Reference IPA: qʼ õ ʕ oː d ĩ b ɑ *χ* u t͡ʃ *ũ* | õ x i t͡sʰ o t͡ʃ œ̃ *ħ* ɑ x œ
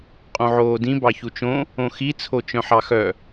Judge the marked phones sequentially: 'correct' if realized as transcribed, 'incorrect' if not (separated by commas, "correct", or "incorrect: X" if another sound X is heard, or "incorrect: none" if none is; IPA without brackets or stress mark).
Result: incorrect: ç, incorrect: õ, correct